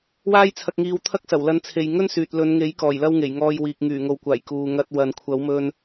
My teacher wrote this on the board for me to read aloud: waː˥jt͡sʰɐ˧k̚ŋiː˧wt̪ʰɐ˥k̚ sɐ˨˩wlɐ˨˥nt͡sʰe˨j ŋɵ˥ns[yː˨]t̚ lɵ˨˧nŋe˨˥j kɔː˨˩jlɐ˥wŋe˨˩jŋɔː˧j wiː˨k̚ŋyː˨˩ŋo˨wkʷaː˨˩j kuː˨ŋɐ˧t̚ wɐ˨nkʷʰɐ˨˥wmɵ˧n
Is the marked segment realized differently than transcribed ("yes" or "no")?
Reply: no